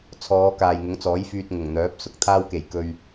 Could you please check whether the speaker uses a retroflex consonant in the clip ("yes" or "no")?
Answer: no